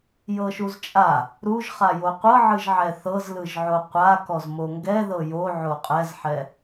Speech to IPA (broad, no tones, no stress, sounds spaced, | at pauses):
j ɤ ʃ u z t͡ʃʼ a | ɾ u ʒ χ a j o qʷ ɤ ʕ ɯ ʒ ʕ ɛ θ ɤ z l ɯ ʒ ʕ o qʷ a k ɔ z m o ŋ ɡ ɛ ð ɤ j o ʕ o qʼ ɛ z ħ ɛ